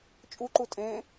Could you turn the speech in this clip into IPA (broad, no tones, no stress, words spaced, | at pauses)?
t͡ʃʼuǃu tʼẽ